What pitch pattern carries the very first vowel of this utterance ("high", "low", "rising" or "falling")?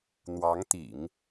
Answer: rising